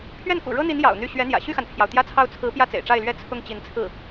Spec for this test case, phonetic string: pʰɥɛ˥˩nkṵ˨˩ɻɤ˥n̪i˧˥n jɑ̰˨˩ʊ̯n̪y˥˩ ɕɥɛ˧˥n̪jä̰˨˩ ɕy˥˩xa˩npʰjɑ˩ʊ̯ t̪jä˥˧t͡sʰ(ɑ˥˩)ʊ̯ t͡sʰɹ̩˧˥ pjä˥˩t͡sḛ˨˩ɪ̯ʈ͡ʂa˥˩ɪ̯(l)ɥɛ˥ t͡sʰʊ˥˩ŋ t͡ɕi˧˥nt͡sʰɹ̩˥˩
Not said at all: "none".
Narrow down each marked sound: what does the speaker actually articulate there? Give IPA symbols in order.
ɑ˥˩, l

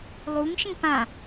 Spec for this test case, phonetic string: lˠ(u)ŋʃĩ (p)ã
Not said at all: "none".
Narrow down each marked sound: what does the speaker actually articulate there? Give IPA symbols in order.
u, p

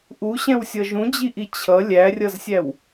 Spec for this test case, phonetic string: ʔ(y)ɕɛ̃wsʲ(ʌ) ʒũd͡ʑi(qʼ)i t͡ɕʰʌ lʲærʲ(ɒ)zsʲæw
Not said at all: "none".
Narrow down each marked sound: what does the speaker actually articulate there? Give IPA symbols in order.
u, ʌ, ʔ, ʌ

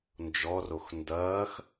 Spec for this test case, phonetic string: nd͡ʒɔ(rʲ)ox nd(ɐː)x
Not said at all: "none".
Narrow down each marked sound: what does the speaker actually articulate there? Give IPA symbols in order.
r, ɐː

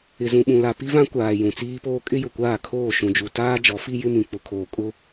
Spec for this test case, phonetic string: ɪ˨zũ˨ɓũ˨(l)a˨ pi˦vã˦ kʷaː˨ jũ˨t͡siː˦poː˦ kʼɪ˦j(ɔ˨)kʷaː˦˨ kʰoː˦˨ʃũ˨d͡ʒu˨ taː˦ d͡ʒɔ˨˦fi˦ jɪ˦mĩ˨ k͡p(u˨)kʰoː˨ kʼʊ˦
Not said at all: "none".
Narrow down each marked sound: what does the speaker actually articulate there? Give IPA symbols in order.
l, ʊ˨, ʊ˨

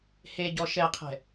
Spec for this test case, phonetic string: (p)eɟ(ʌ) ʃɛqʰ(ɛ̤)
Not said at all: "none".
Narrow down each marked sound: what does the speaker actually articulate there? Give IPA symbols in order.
h, ɔ, ɛ̤

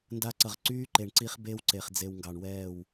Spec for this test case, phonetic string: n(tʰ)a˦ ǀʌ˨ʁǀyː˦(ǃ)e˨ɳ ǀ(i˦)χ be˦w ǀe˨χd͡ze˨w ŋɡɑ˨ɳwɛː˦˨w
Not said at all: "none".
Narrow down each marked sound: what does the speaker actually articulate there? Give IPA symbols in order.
d, ǃ, i˦

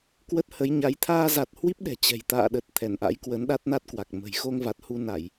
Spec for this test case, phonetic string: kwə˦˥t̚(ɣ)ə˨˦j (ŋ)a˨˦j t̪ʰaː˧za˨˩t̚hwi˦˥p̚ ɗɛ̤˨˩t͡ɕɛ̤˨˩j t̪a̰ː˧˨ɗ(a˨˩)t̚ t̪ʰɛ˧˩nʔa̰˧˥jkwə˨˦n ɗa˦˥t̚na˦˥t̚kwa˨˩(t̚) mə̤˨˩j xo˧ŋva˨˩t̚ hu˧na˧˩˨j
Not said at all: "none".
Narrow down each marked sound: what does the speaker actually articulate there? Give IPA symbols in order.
h, ɲ, ə˨˩, k̚

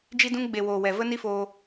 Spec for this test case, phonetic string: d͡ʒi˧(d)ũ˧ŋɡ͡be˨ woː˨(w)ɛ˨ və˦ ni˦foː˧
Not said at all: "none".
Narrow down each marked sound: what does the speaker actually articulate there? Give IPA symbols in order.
d, w

